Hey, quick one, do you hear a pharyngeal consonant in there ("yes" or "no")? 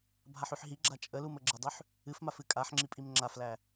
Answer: yes